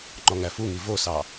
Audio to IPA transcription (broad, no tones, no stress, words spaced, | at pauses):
ŋ͡ǃɔŋæfuŋi vosɑ